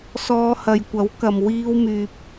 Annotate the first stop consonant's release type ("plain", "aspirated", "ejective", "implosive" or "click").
plain